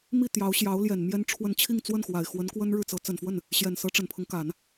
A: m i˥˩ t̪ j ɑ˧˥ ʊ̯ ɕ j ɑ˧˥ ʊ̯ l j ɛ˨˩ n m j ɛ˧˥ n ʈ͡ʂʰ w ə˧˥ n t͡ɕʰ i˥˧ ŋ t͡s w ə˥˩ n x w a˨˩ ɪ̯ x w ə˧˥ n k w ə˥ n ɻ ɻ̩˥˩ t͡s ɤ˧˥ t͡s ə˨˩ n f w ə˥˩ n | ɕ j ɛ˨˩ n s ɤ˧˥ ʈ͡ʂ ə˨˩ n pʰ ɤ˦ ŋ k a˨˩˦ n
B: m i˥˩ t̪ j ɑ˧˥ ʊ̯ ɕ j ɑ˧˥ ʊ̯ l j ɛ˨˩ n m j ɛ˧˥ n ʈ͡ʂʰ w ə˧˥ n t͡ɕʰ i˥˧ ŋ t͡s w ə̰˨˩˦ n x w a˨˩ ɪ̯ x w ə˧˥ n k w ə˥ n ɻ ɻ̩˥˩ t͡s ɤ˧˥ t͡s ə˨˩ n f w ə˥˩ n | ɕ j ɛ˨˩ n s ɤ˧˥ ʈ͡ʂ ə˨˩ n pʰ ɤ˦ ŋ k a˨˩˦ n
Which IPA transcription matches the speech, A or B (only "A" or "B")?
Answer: A